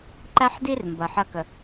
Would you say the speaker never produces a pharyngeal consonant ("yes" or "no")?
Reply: no